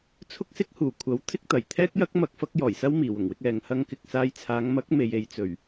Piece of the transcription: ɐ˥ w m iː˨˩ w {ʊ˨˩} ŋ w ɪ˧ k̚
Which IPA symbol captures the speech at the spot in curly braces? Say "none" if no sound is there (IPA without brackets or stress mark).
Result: ʊ˨˩